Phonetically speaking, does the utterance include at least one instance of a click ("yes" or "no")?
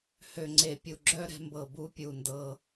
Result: yes